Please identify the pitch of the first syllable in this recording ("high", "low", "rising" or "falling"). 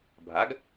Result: rising